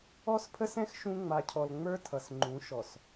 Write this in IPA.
ɔ˦ s pʰ ə˦ s ɛ̃˦ x ʃ ũ˦ ŋ͡m a˨ cʰ ɔ˨ l ŋ͡m ə˞˦ tʰ ʌ˨ s ŋ͡ǃ ũ˨˦ ʃ ɔ˨ s

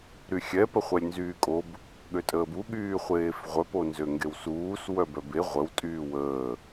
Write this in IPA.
ɾ y xʲ ɛ p ə χʷ ɛ lʲ n z yː kʼ o b | ɠ ø tʼ əː b u ɠ yː χʷ eː f ʁʷ œ p o n z ø ŋ ɡ e w s uː s w œ b œ b e ʁʷ ə w tʼ yː w əː

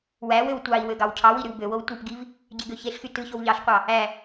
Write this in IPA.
w æ w ø w tʷ ɑ i̯ w ø ɡ ɑ w cʰ ɑ w i ɾ y w b ø w o w tʷ ɯ p ɡ i v | ɟ e ɡ ø ç e ɬ x y t ɯ ç o w ʎ ɑ ɬ qʷ ɑ | æ

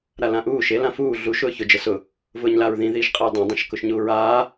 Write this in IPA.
ɾ a l ã ʔ uː ʃ e l ã f uː ɮ u ʃ ʊː ç ʊ d͡ʒ ə s ʊ | v ʊː ɲ l a ɹ ð ĩ ð iː ʃ qʼ e j dˤ ĩ dˤ ĩ ʃ k ʊ ʃ ɲ uː ɹ aː

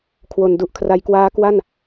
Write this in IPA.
kʰ w o˧ n d u˦˥ ʔ kʰ r a˦˥ j k w aː˦˥ k w a˥˩ n

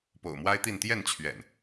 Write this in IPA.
p o̰˨˩ ʊ̯ m w a˦ ɪ̯ t̪ i˥˨ n t̪ j ɛ˥˨ n t͡ɕʰ ɥ ɛ̰˨˩ n

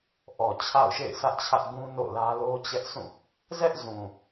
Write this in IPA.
ʔ ɔ˨ t͡ɕʰ a̰˦˨ ʊ̯ ʃ ḛ˦˨ ɪ̯ sʰ ä˦ ʔ t͡ɕʰ ä˦ ʔ ɡ ũ˦ n o̰˦˨ l ä˦ l o˦ t͡ɕ ɛ˦ ʔ sʰ ũ˦˨ | z ɛ˦ ʔ z ũ˨

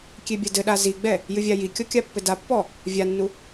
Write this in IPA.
kʲ e bʲ ɐ d ɘ ɗ a z i ɡ͡b ɛ | j ɨ vʲ a j i kʲ ɔ kʲ a pː ɘ d a pː ɔ | vʲ a nː u

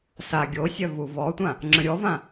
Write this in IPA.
s a ɡʲ o sʲ œ v u v ɔ tʷ ã | ŋ͡ǁ ə̃ ɾʲ ɔ v ã

